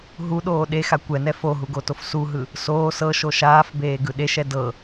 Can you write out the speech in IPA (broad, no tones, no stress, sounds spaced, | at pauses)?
ɦ u ɗ oː ɗ e x a kʷ ɛ n ɛ f o ɦ u ɡ o t o f s u ɦ ɯ | s oː s ɤ ʃ o ʃ aː f b eː ɡ ɯ ɗ e ʃ ɛ d ɤ